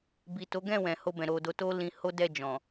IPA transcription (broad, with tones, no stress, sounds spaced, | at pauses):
b i˨ t o˨˦ ɡ ɛ̃˦˨ w ɛ̃˨ h o˧ b ɛ̃˨ ɾ o˨ d o˧ t o˦ l ĩ˧ h o˦ d ɛ˦˨ d͡ʒ ɔ̃˨